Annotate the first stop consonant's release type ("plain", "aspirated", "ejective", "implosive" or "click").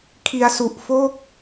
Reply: aspirated